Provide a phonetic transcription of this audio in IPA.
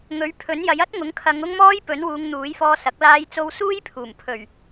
ŋ ɵ˨˥ ɥ pʰ ɵ˨˥ n j ɐ˨˥ j ɐ˥ t̚ ŋ ʊ˨˥ ŋ kʰ ɐ˨˧ ŋ ʊ˥ ŋ m ɔː˥ j p ɵ˨˥ n w uː˨˧ ŋ n̪ uː˨˥ j f ɔː˧ s ɐ˨˥ k̚ l aː˧ j t͡s o˧ w s uː˥ j pʰ uː˨˩ m pʰ ɵ˨˩ ɥ

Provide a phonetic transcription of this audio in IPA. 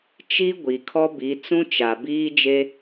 t͡ʃ i˦ ɡʷ i˨ kʰ ɔ˦ b i˨˦ t͡s ũ˦ t͡ʃ a˨ b iː˦ d͡ʒ e˦

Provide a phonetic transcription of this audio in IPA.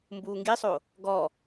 m b uː ŋ ɡ i sˤ o | ɡ ɔ

